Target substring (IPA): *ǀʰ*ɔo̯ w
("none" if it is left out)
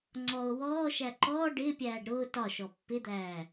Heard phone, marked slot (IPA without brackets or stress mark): ŋ͡ǀ